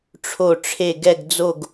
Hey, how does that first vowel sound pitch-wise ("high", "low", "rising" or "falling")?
falling